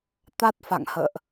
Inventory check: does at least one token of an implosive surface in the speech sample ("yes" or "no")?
no